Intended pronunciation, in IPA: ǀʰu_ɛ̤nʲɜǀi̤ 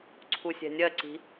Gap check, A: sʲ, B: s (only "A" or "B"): A